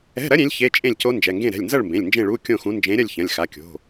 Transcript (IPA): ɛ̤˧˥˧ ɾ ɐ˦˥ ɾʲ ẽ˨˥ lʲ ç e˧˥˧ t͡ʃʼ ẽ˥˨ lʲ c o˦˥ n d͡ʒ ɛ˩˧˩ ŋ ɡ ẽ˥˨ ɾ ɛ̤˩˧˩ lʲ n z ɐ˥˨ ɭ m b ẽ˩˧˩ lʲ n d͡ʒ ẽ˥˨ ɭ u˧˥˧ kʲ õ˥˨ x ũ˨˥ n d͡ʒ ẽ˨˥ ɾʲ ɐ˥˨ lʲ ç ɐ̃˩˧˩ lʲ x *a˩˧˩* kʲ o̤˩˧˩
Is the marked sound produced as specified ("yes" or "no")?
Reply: yes